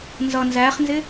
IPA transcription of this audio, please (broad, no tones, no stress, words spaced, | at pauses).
nzʌ nzæχnzɪ